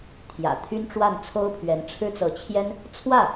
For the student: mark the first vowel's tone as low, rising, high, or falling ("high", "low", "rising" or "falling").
low